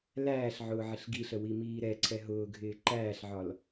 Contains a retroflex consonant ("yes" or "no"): no